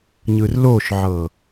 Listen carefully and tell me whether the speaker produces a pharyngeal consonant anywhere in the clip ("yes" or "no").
yes